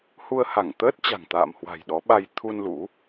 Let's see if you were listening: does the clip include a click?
no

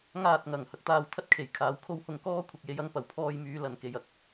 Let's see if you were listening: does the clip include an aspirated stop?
yes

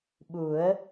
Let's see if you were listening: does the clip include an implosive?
yes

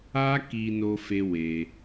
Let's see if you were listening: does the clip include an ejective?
no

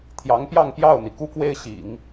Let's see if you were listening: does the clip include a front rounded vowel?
no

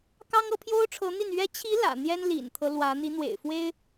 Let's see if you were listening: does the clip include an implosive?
no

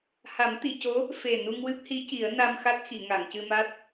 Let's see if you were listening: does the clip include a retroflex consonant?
no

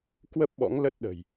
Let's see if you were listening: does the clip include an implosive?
yes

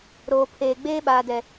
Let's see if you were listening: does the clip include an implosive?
yes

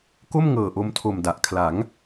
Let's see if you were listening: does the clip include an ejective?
no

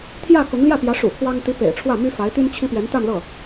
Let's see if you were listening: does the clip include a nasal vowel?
no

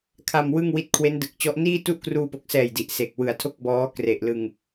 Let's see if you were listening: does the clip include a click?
no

